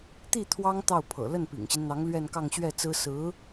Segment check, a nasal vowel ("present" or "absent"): absent